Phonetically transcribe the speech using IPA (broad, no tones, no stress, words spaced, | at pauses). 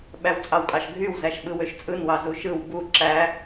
ɓæwt͡sʼɑwkʼɑʃɡʱyw zæʃɓɯwøʃt͡sʼɯn wɑzuʃɯw bu ǁæ